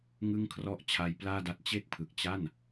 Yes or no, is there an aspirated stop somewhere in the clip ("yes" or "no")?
yes